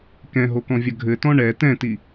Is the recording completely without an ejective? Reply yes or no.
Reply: yes